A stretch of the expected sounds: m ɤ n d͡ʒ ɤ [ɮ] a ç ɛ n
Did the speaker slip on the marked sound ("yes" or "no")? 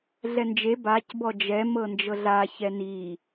no